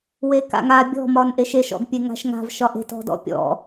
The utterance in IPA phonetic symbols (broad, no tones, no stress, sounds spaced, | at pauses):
w e k a̰ ŋ a bʲ ɔ̤ m ɒ n ʔ e ʃ e ʃ ɔ̰ ɡ pʲ e ŋ a̤ ʃ ŋ a̤ v ʃ ɒ ʔ e̤ t ɔ̤ d ɔ̰ pʲ ɔ̰